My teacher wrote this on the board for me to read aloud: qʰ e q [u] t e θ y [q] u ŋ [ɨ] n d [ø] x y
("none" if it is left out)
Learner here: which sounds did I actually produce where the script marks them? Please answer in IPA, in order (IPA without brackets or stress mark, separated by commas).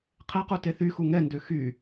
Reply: u, x, ɛ, ø